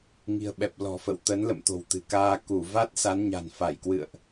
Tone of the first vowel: low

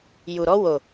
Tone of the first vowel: low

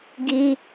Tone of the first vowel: high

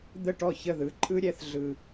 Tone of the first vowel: falling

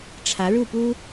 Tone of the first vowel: rising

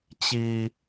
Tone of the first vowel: low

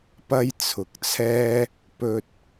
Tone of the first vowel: high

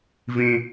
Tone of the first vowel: high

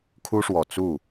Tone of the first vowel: high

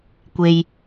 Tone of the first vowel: low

